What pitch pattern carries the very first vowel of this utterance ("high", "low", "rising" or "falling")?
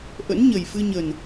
rising